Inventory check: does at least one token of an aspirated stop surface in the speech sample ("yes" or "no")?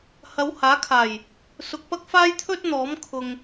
yes